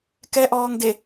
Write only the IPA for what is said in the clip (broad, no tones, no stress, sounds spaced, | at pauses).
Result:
k ɛ ʔ ɔː ŋ d e